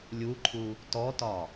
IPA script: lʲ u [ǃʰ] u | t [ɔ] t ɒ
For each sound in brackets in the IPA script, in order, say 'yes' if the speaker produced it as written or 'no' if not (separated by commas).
yes, yes